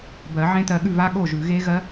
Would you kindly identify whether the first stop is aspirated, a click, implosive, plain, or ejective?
plain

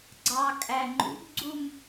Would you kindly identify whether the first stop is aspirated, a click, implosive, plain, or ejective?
click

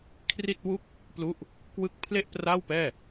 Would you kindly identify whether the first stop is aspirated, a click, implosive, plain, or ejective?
aspirated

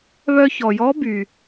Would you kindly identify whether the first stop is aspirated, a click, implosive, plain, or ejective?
plain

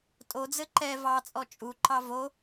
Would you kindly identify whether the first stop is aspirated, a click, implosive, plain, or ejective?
ejective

